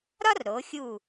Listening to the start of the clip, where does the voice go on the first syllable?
high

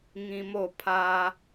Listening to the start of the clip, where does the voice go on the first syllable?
low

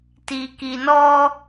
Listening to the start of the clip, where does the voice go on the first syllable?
low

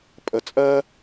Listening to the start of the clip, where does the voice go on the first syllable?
low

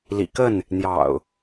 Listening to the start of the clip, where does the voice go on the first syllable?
low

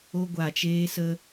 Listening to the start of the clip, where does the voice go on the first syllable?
high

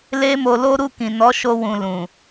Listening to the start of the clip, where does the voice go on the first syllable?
high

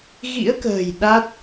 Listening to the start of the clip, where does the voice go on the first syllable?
rising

